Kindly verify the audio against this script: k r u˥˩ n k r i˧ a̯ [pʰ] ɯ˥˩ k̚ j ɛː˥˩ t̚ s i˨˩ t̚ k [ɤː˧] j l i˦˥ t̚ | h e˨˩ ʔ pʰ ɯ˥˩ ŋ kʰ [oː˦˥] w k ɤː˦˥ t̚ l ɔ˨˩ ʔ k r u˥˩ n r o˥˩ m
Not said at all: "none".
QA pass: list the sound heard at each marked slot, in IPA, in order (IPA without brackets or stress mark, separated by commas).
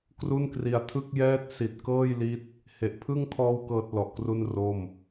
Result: tʰ, ɤː˥˩, ɔː˦˥